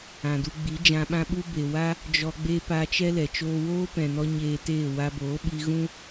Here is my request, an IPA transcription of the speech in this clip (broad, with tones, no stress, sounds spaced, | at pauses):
ã˨ d u˧ ɡ͡b i˨˦ d͡ʒ ã˧ ɓ ã˦ ɓ u˦ b e˨ w a˦ | d͡ʒ ɔ˧ ɡ͡b e˦ p a˧ t͡ʃ ɛ˦ l ɛ˨ t͡ʃ oː˦ w oː˦ p ɛ̃˨ n ɔ˦ ɲ eː˧ t eː˦˨ w a˧ b oː˨˦ ɓ i˧ ɣ ũ˦